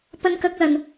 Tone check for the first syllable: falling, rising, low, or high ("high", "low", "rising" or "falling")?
high